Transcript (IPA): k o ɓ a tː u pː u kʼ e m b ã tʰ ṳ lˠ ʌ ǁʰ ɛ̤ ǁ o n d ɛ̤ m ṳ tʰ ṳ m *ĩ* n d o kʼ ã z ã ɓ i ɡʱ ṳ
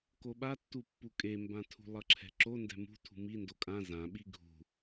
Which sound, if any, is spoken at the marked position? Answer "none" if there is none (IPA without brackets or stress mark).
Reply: i